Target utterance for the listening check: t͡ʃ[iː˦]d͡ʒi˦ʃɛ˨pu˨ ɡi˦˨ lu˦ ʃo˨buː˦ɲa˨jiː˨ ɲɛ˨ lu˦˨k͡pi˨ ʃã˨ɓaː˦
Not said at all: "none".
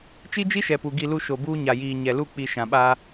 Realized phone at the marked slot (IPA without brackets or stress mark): i˦